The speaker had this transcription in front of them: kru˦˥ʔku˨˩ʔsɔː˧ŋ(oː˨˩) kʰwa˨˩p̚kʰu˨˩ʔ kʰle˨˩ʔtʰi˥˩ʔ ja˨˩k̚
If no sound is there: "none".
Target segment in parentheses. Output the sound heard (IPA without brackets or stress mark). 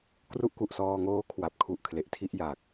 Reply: oː˦˥